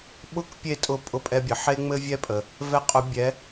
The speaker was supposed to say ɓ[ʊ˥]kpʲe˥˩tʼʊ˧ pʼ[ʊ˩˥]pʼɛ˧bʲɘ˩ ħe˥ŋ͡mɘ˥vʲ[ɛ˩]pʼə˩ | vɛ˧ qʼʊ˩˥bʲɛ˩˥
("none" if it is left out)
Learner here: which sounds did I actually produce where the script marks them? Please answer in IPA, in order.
ʊ˥, ʊ˧, ɛ˥

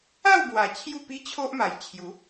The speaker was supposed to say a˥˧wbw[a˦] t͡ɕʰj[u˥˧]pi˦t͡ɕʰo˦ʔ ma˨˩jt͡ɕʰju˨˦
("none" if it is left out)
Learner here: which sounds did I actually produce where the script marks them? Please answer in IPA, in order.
a˨˩, u˥˧

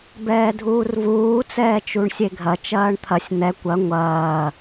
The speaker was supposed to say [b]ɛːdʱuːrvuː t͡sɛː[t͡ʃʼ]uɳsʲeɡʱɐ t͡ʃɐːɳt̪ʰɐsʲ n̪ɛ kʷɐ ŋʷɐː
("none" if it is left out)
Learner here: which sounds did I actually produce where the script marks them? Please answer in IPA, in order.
b, t͡ʃ

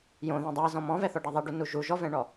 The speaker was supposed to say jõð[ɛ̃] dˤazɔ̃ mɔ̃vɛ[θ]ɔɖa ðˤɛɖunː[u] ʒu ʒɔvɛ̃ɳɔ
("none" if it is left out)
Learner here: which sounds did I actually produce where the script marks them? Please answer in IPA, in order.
ɛ̃, θ, u

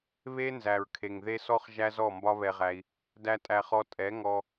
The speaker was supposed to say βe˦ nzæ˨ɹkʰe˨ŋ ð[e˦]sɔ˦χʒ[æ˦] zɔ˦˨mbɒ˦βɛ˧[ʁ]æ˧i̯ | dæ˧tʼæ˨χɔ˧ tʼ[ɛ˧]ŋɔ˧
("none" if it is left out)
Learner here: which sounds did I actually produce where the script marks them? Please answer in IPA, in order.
e˦, æ˦, ʁ, ɛ˨˦

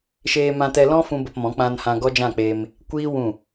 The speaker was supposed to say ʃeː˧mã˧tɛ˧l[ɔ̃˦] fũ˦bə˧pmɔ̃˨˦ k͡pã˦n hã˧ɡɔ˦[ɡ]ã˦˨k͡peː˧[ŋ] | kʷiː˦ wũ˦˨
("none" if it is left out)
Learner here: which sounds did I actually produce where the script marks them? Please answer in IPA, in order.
ɔ̃˦, d͡ʒ, m

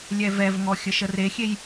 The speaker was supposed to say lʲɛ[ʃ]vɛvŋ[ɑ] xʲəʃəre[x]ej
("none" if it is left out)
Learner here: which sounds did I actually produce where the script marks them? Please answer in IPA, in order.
none, ɔ, xʲ

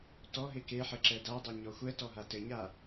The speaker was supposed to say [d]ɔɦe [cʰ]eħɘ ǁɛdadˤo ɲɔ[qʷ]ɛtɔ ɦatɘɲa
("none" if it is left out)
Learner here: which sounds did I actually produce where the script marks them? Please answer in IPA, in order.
t, k, xʷ

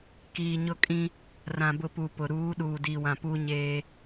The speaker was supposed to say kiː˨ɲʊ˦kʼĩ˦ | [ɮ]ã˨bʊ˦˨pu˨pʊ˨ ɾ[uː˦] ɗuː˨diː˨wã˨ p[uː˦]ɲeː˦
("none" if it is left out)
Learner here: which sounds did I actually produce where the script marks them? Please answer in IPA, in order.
r, uː˨˦, uː˦

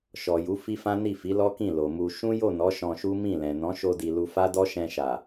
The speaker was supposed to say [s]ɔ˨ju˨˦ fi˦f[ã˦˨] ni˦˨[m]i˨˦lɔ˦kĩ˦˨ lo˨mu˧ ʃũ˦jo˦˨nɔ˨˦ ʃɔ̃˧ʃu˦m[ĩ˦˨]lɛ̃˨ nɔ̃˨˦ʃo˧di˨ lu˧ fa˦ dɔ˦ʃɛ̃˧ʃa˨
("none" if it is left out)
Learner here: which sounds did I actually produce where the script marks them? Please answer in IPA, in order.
ʃ, ã˦, f, ĩ˦˨

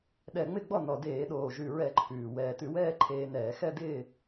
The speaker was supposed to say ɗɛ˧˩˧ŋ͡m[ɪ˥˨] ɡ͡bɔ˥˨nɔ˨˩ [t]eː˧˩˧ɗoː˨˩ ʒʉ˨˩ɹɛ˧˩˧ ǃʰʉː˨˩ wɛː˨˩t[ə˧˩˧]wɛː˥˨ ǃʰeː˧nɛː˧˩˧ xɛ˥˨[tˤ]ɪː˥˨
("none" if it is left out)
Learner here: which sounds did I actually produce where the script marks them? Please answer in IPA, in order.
ɪ˥˨, d, ʉ˧˩˧, d

